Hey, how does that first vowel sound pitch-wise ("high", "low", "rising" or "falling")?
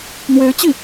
rising